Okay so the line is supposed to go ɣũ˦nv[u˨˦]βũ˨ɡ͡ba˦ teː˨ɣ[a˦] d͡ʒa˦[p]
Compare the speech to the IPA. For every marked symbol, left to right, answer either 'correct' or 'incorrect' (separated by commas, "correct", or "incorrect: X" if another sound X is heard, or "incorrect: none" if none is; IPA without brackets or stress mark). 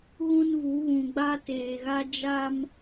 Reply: correct, correct, incorrect: m